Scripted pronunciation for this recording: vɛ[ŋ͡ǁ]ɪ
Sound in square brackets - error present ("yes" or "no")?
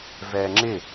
no